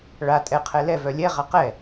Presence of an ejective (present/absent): present